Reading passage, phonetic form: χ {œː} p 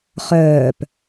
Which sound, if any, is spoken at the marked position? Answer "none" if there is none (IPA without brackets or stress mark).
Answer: œː